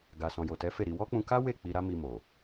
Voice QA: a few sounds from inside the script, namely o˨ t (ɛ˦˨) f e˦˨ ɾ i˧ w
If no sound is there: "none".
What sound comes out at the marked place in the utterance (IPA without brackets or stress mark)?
ɛ˨˦